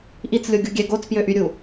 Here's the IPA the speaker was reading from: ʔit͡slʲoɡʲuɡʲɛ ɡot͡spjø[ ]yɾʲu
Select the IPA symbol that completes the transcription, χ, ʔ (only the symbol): ʔ